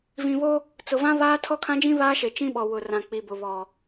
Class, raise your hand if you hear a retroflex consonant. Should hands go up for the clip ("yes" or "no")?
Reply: no